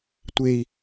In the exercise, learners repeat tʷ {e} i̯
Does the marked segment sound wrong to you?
no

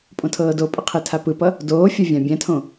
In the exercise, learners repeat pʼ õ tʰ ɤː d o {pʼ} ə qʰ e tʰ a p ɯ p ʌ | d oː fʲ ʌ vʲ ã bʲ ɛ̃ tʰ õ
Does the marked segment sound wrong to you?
no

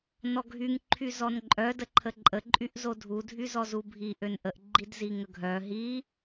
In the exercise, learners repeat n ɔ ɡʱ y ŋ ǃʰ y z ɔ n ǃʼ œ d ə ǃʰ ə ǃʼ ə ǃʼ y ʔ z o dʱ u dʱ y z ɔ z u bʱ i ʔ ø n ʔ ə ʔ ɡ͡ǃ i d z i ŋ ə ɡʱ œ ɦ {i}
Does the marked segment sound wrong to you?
no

